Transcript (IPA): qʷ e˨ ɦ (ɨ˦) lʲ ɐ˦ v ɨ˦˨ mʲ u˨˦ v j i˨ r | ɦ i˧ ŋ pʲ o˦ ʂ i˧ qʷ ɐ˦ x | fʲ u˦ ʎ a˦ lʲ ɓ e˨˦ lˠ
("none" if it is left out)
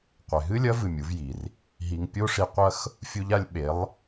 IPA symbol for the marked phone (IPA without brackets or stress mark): ɨ˦